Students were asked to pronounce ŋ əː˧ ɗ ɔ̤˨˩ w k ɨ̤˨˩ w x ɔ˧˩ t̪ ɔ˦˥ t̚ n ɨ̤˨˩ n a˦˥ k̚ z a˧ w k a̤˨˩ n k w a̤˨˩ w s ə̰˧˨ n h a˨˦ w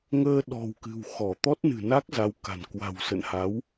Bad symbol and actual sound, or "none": none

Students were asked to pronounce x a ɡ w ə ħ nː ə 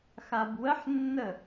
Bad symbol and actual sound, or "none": ɡ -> b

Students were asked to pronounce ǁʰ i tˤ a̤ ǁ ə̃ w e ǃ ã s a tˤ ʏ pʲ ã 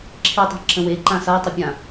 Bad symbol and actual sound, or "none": none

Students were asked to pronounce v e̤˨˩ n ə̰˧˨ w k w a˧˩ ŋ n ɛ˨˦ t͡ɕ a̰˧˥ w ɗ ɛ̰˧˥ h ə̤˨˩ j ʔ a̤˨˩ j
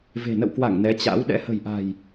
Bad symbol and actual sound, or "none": none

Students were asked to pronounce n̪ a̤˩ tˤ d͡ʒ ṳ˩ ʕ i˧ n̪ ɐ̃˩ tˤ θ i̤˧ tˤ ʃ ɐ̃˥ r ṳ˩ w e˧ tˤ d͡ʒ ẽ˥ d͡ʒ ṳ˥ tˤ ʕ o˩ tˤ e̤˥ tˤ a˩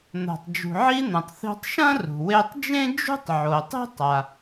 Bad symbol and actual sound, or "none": none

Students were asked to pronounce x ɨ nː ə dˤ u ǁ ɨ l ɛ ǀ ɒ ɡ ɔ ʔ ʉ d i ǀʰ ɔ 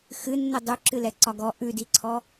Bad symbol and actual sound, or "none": none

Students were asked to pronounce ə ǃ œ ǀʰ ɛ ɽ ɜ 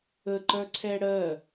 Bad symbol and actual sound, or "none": none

